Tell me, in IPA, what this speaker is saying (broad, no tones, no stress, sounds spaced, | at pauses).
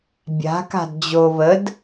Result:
bʲ a̤ k a̤ d d͡ʑ o β ə d